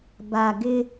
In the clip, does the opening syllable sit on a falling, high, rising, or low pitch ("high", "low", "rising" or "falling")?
low